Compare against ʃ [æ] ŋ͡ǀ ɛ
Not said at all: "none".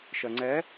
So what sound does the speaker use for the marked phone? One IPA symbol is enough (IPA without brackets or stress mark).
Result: ɜ